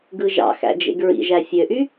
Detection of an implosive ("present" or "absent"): absent